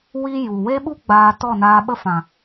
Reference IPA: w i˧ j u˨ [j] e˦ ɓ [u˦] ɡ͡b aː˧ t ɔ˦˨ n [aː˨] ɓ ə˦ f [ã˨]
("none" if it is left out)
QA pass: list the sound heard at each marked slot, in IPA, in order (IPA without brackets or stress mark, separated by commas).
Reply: w, u˦, aː˧, ã˨